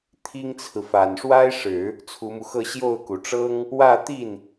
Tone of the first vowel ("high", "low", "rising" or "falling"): high